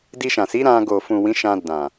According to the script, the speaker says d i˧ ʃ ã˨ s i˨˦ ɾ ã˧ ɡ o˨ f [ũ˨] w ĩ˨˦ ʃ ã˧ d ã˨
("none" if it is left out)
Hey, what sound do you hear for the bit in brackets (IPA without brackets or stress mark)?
ũ˨